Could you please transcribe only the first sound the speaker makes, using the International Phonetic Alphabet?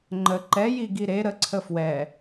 ŋ͡ǃ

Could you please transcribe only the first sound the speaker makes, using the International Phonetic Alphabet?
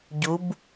ɟ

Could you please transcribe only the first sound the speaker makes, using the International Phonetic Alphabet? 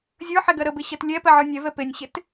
zʲ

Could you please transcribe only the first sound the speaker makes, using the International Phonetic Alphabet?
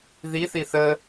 ð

